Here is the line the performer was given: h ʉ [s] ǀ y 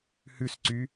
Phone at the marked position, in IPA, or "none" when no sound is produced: s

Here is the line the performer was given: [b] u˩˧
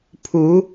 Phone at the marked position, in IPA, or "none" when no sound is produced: pʰ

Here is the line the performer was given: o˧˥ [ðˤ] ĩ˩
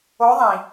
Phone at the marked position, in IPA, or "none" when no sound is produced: ðˤ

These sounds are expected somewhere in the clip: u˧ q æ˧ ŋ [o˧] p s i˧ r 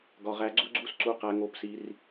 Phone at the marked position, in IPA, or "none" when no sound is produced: o˧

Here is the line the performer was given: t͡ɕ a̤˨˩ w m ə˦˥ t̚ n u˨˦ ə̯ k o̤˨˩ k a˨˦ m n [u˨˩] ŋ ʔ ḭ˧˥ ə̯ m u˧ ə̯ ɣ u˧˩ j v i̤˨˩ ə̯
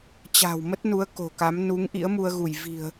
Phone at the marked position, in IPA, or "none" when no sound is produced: u˨˦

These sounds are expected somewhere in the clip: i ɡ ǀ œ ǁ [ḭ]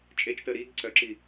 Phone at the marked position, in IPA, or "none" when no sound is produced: i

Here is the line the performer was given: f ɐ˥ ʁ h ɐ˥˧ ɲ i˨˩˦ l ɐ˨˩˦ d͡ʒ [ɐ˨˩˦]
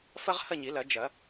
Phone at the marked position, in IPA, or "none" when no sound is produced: ɐ˨˩˦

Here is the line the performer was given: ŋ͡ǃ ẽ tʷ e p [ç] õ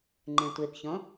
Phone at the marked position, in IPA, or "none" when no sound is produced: ç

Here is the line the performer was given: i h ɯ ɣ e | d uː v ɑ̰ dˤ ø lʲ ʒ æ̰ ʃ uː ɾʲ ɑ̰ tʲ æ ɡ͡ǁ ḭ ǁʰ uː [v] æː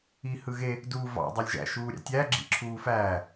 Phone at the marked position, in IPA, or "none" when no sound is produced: f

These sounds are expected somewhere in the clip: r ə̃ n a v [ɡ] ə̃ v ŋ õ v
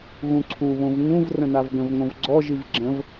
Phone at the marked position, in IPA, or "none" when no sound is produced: ɡ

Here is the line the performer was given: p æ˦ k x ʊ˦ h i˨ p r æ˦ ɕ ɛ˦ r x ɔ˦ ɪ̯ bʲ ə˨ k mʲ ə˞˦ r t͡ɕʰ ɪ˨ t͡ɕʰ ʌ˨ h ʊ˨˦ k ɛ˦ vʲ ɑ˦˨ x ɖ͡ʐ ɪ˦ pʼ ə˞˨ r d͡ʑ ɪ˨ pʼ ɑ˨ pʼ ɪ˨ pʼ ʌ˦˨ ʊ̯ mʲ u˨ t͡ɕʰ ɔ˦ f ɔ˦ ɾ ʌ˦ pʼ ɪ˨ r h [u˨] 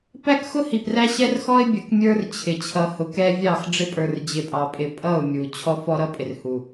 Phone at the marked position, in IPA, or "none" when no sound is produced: u˨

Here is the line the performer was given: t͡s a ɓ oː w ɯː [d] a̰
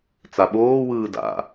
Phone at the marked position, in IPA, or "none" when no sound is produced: d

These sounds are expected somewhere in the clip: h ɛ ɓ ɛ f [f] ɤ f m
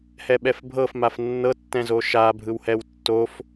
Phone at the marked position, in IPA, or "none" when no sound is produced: bʱ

